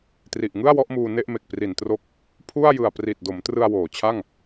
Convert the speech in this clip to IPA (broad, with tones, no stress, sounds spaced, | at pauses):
t r i˨˩ ʔ ŋ ɯ˥˩ a̯ w ɔ˦˥ ʔ m uː˧ n e˥˩ ʔ m e˨˩ k̚ p r i˨˩ n t r o˦˥ k̚ | pʰ u˥˩ a̯ j ɯ˨˩ a̯ p r i˨˩ t̚ d o˩˦ m t r ɯ˧ a̯ w oː˩˦ t͡ɕʰ a˥˩ ŋ